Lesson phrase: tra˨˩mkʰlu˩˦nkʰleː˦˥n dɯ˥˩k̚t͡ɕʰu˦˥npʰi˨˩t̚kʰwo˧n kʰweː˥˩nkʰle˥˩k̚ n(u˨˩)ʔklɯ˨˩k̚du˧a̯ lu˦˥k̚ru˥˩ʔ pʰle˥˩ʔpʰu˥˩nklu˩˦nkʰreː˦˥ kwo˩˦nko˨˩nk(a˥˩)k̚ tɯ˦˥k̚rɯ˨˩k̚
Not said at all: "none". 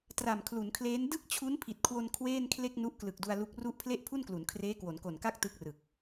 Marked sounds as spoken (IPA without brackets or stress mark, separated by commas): u˦˥, a˥˩